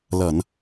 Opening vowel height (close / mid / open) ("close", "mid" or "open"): mid